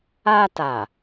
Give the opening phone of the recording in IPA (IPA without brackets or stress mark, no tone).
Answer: a